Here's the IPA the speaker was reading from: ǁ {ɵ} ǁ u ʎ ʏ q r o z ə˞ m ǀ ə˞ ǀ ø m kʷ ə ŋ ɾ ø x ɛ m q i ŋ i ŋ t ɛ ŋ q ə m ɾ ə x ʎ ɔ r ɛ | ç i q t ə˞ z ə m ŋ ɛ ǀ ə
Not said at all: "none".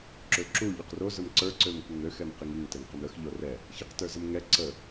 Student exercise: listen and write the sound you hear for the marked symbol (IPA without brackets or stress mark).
ø